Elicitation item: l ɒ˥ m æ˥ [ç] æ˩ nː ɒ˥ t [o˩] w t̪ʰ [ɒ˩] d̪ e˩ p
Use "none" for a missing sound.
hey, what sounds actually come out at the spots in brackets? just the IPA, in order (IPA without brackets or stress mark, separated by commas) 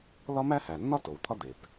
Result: h, o˩, ɒ˥